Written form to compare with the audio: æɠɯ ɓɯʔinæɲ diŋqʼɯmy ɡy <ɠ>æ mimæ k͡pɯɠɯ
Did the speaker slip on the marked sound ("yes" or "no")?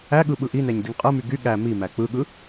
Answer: no